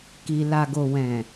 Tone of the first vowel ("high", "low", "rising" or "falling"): low